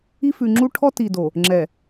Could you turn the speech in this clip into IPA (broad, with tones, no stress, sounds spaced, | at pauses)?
i˦ f ʉ˨ ŋ͡ǁ u˦ ʈʰ ɔ˦ t i˨ d o˨ | ŋ͡ǁ ɛ˨